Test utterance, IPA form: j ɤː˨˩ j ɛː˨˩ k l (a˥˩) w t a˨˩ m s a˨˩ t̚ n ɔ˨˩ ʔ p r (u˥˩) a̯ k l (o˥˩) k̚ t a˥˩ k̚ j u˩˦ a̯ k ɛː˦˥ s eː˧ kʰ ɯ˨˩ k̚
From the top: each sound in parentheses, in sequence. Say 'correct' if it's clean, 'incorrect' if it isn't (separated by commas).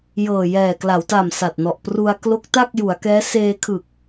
incorrect, incorrect, incorrect